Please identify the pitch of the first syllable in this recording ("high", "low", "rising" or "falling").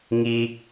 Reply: high